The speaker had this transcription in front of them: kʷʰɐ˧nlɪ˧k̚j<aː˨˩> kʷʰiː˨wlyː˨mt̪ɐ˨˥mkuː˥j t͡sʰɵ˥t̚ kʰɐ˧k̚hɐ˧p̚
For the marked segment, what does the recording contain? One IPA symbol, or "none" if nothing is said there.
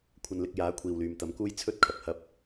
aː˨˥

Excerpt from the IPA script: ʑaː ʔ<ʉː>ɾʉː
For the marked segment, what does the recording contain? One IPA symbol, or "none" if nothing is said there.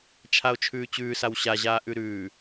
ʉ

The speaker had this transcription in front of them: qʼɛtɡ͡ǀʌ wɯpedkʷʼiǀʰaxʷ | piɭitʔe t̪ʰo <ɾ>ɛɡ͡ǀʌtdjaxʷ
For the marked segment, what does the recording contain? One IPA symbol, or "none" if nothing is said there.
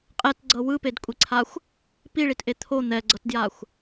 n̪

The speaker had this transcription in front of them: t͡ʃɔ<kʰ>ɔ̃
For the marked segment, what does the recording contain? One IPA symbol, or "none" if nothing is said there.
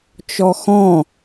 x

